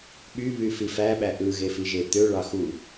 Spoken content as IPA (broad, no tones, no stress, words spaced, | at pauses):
ɓyβy fifæɓæ ʔɯɣefi ʒet̪ø ɭɑxu